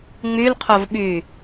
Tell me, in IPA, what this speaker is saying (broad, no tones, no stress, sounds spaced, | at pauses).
ŋ͡m y l qʰ o v ɓ y